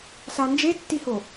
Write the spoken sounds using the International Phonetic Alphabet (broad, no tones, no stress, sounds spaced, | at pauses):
s a n d͡ʒ e tː i h o